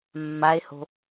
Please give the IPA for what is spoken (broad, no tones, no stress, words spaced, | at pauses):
mːae̯ho̤